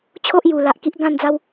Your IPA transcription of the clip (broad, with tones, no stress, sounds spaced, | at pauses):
t͡ɕʰ o˦ ʔ j u˨˩ l a˨ ʔ k i˦ ʔ ɡ ã˥˧ n d͡z a˦ w